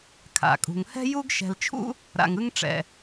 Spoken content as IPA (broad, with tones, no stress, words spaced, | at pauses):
kʰa̰˧˩kʼṳ˧ŋ hɛ̤˥ju˥ɡʃɛ̤˧lt͡ʃʰṵ˥ | ɾa̰˧ŋɯ˥ŋʈ͡ʂɛ̰˧